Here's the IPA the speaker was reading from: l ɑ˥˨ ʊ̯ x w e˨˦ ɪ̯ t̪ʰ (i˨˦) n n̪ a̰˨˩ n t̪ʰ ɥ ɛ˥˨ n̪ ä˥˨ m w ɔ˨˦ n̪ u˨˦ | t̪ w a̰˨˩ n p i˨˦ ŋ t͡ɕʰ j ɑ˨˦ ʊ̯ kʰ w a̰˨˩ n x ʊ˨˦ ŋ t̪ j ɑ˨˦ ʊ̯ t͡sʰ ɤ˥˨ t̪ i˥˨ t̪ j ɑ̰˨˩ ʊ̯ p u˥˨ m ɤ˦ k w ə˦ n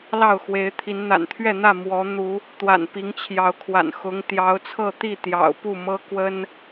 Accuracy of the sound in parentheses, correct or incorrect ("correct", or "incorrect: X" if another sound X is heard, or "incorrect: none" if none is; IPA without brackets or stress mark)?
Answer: correct